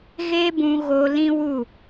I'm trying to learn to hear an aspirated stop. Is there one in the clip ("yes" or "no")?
no